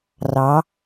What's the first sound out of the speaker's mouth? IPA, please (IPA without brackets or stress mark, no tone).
r